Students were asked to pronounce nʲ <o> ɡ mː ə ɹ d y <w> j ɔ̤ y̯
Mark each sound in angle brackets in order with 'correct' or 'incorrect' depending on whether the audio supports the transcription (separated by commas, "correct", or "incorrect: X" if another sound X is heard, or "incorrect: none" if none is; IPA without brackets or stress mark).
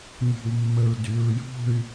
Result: incorrect: o̤, incorrect: ɹ